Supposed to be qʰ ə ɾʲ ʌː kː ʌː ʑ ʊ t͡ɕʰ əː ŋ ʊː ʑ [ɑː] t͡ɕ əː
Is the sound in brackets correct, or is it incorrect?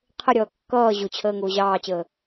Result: correct